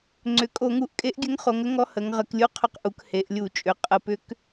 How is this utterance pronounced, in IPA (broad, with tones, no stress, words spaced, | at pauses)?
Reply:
ŋ͡ǀʏ˩˧ kʼo˧˩˧ŋu˧˩˧ʔkʼe˧˥ʔɡʲɘ˧˥ŋ χo˩˧ŋ ə˧˥ŋɔ˧˥ hə˩˧ŋ ʁə˩˧klʲu˧˥ qʰʏ˧˥qʔu˩˧k he˩˧ʔlʲu˧˩˧t͡ʃʼʏ˩˧ qʼə˧˩˧pʏ˧˥k